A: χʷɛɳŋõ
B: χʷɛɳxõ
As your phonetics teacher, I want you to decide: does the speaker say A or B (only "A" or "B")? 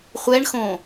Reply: B